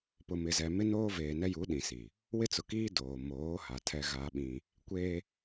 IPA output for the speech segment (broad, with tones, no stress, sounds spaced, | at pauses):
p ʊ˨ m ɪ˨ z ɛ˨ m ɪ˦ n oː˦ v eː˨ n ɛ˦ j u˨˦ ɗ ĩ˨ s i˨ | w ɪ˦ t͡s ʊ˨ k iː˦ d oː˨ m oː˨˦ h a˨ tʰ ɛ˦ ɣ aː˦ ɓ ĩ˦ | kʷ eː˦